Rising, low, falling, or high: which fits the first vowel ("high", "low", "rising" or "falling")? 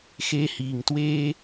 high